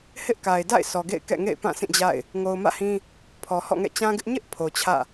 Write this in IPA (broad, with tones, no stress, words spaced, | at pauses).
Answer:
hɪ˦ʔka˨ɪ̯ da̰˦˨ɪ̯ sʰɔ˨ɡḛ˦˨ɪ̯ kɛ̰˦˨ŋḛ˦˨ɪ̯ pã˦˨sʰĩ˦˨d͡ʑa̰˦˨ɪ̯ | ŋo˨ʊ̯mä̰˦˨hĩ˦ | pʰɔ˨hɔ̰˦˨ŋɛ̰˦˨ t͡ɕã˦ɡɪ˦ʔ ɲɪ˦ʔ pʰo˨t͡ɕʰä̰˦˨